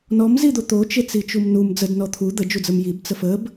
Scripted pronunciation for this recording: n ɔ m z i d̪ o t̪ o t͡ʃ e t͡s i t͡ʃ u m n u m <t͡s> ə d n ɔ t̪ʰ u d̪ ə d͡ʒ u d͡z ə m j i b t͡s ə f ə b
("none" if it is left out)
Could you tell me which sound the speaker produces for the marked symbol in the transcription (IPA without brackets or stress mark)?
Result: d͡z